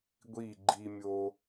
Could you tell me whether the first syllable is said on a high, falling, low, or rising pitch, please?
falling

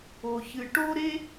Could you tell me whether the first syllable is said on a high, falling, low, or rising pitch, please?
low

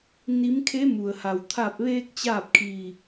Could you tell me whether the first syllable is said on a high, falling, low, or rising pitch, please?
rising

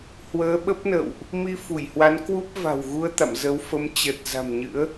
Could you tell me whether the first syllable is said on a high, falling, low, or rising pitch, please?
rising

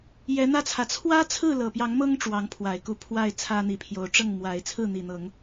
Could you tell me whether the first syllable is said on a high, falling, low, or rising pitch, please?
rising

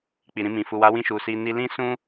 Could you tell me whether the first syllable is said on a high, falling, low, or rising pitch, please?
low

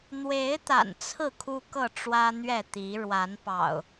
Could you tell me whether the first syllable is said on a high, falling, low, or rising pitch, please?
rising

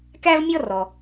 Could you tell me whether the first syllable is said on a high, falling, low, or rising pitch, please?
high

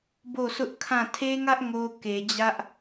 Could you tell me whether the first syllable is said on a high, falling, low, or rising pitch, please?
falling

